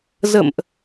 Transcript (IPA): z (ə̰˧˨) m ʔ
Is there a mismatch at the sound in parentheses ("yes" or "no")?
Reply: no